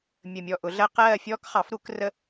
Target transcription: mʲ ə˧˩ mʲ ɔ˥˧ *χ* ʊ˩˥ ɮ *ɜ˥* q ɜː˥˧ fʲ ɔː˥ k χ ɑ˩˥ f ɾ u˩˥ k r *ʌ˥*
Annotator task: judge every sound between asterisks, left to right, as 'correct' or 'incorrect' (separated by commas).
incorrect, correct, incorrect